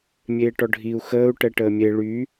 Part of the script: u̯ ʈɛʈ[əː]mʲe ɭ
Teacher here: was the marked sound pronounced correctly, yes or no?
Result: yes